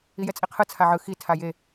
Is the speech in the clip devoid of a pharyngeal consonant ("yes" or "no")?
no